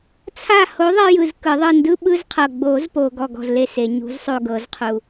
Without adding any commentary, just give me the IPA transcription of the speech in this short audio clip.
t͡sʰa˦˨ho˨˥ ðˤe˦jɯ˨z kɯ˨˩˦ðˤɯ˦˨ ndɯ˦ɓɯ˦zqʰɤ˨ ɡ͡bo˨˩˦zpo˨ ɡɔ˦˨ɡɔ̤˦˨zle˦˨se˨˩˦ ɲṳ˨˥zsˤo˦˨ɡɤ˨˩˦zqʰu˨

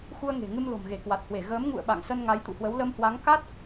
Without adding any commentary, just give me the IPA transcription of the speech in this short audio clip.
xu˧ə̯ ŋe̤˨˩ ŋɨ˧mlo̤˨˩mɣe˧˩ kwa˨˩t̚hwe˧˩ ɣəː˨˦m ŋṵ˧˨ə̯ ɓa̰˧˨ŋsə˧n ŋa˨˦jt̪ṵ˧˨hwə˨˦w lə˧mhwa˨˦ŋ ka˦˥t̚

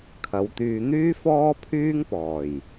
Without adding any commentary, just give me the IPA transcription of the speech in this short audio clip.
kʰɐ˨˧wt̪yː˧ n̪yː˥fɔː˥ pʰyː˥ŋpɔː˨˩j

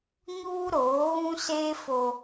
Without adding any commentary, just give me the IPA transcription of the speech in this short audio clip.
ɲuː˦ɾoː˨˦ɣũ˦seː˦ fo˦

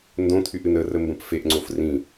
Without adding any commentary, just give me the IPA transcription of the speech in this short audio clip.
ndõt̪ʰyʔ ɨnərə mbə̃pfeʔŋ͡ǀof rĩ

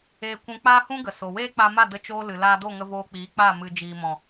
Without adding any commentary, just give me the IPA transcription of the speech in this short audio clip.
eː˧ kʷũ˧k͡paː˦hũ˦ɡə˨ so˨weː˦k͡pa˧ma˦˨ də˧t͡ʃoː˧ lɨ˨laː˧do˦˨ŋə˧ voː˧k͡piː˨˦k͡pa˦˨ mɨ˨ d͡ʒiː˨mɔ̃˨

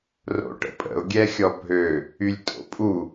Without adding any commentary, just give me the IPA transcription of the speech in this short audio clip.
ro̰ʈə̰pʼə̰ʊ̯ ɡʲɛxʲɔbʱø | ylʲtʼo̰pʼu

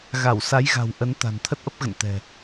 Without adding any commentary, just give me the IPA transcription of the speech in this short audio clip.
ɣa˧˩wsa˨˦jɣa̤˨˩w ʔə˨˦n t̪a̤˨˩nt̪ʰə˦˥t̚ʔə˦˥p̚ ɣə̰˧˨nt̪ɛ̤˨˩

